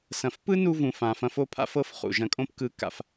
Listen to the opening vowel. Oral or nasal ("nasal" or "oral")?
nasal